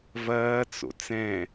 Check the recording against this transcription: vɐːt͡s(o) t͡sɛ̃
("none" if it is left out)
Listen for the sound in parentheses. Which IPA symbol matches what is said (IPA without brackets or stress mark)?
o̰